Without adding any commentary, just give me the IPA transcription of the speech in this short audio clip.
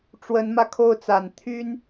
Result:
ʈ͡ʂ w ə˧˥ n m ä˧ kʰ o˥˩ ʊ̯ t͡s a˨˩ n t̪ʰ y˥ n

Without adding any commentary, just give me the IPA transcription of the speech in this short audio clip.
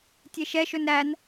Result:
tʲ e ʃ ɛ ʃ ɵ n ɾ æ n

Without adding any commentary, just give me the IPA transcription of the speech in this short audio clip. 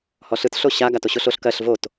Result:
h ɔ ɬ ɯ t ɬ o ɕ a ɡ a t o ɕ o ɬ o ɬ k ɜ ɬ v o t

